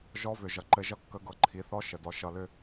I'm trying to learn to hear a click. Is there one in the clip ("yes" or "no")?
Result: yes